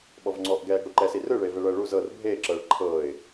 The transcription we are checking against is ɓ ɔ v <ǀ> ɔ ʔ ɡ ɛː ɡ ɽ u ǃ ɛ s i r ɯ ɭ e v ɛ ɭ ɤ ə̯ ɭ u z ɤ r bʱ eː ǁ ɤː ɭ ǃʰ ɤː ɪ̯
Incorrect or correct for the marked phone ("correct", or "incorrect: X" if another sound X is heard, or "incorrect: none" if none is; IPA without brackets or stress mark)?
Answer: incorrect: ŋ͡ǀ